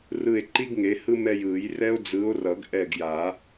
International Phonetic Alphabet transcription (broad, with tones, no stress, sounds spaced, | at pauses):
r ɯ˦˨ e̯ ǃ i˥ ɡ ŋ e˨˥ h ɯ˥ m ɛ˦˨ j ɯ˨˩˦ j r ɛ˥ o̯ d͡z ɯ˨˥ o̯ r ʌ˨˩˦ ɡ ʔ ɛ˦˨ ɡ j a˨˩˦